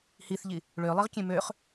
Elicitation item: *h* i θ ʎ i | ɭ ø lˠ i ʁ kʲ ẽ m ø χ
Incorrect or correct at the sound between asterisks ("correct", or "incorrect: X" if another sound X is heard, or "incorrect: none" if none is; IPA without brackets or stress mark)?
correct